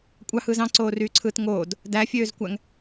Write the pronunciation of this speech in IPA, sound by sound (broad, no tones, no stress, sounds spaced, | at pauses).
kʷʼ ɑ h ɯː z ɑ̃ ǀ oː r yː ǀʰ ɯː t ŋ oː d | d æ fʲ øː z kʷ æ ŋ